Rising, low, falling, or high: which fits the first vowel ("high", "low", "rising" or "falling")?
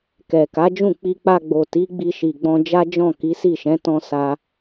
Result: low